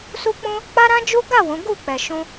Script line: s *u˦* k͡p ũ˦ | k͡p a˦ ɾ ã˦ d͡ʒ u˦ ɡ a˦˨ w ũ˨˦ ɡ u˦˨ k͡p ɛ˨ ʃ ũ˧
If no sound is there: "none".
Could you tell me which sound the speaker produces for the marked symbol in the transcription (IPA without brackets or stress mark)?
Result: u˦